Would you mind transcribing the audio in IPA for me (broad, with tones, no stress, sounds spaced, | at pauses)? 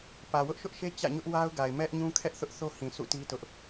p ä˨ w ʊ˦ ʔ ʃ ʊ˦ ʔ ʃ e˦ t͡ɕ ä̰˦˨ ɲ ʊ˦ ʔ w a˦ ʊ̯ ɡ a˨ ɪ̯ m ɛ˦ ʔ ɲ ũ˦ kʰ ɛ˦ ʔ θ ʊ˦ ʔ θ o˦ h ĩ˨ s ṵ˦˨ t i˦ t ʊ˦ ʔ